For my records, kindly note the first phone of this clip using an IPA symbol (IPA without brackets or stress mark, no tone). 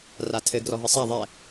r